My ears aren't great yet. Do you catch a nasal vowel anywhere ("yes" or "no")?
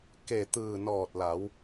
no